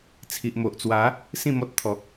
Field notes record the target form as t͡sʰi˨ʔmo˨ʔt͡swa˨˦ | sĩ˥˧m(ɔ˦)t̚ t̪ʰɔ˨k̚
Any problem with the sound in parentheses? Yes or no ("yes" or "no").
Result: no